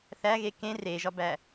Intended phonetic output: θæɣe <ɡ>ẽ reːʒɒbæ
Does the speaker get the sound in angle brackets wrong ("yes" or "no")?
yes